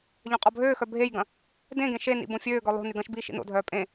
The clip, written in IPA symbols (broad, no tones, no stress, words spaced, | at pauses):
ʎœ̃qʼɔbʱøːxœ bʱejɡɐ̃ | dẽɡẽ ʃenḭ bõfʲøːɡœ lˠo̤ nyɡɐ̃ʃbiː ʃḭno̰dʱœː pʼẽ